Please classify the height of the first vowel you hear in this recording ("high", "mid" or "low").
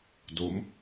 mid